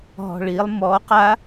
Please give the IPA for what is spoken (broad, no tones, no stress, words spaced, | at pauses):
ɦɔ̤ɭilˠ mɔ qa